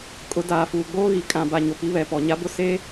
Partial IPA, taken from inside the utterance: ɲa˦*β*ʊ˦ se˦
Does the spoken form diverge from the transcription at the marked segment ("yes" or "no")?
yes